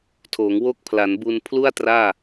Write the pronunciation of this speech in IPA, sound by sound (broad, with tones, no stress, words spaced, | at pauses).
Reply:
tʰoː˩˦ŋwo˦˥k̚ pʰla˩˦nbu˧n pʰlu˥˩a̯traː˥˩